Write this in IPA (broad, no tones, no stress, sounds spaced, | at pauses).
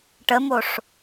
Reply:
ʈ ə m o ʂ